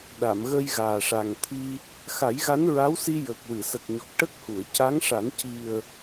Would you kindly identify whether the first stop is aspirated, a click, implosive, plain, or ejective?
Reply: implosive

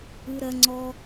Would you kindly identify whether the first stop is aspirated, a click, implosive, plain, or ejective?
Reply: click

